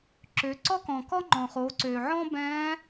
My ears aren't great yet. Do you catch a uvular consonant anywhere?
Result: yes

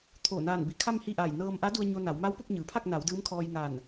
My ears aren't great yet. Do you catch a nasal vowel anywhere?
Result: no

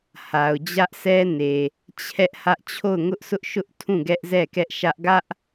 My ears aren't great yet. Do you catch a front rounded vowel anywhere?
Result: no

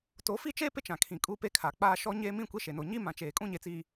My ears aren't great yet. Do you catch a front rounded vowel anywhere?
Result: no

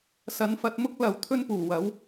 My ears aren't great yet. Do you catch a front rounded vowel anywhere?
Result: no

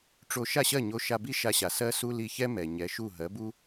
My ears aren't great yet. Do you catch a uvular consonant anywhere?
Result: no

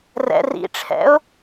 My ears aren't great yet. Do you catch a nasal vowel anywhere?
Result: no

